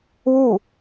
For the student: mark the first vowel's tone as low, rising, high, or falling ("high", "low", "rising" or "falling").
falling